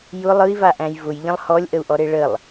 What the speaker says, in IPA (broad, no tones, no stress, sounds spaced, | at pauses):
j ʊ lˠ ɯ i̯ v a ʔ æ̃ j v ʊ j ʎ ə̃ lˠ h ɔ lʲ ʔ ə u̯ ʔ ɔ ɾ e ɭ ə lˠ